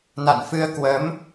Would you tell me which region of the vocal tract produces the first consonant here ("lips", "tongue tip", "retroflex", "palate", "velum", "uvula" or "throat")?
tongue tip